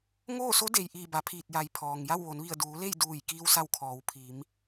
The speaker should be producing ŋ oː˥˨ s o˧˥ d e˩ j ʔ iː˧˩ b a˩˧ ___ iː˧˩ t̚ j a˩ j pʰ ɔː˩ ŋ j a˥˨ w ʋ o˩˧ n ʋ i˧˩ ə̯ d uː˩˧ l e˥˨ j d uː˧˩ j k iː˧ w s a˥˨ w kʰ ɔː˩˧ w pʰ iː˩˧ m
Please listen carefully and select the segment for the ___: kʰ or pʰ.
pʰ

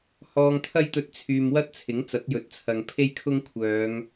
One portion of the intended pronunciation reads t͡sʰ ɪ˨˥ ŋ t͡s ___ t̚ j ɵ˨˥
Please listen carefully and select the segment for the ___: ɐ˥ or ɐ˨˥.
ɐ˨˥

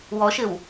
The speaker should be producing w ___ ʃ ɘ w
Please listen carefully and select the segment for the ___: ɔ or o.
ɔ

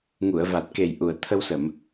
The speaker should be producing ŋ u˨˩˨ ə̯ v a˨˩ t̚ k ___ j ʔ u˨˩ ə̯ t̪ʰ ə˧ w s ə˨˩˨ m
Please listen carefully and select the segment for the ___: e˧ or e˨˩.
e˨˩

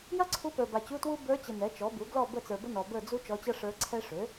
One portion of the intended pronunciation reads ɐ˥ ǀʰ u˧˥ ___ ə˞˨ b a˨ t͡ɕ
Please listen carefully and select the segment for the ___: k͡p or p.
p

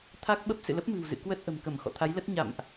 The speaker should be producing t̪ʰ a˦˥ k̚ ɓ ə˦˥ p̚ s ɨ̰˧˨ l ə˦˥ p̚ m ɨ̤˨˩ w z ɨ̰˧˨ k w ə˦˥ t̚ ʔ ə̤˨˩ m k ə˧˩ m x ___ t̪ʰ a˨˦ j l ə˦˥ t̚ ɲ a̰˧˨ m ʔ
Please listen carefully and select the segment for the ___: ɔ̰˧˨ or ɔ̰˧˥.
ɔ̰˧˨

